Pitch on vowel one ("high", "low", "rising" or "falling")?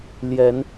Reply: rising